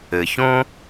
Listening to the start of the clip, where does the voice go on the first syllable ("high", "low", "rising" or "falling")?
low